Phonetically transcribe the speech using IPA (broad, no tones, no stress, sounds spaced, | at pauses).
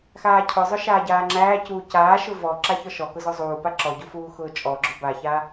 x aː cʰ ʊ zˤ ʊ ʃ aː ɟ aː ŋ͡ǁ æː c uː c aː ʃ ʊ v ɔ ǁ a ç ɔ ʃ ɔ k ʊ z ɔ zˤ uː p a ǁ ɔ ɟ u f uː x ʊː t͡ʃʼ ɔ ɡ͡ǁ ʊ b a ç a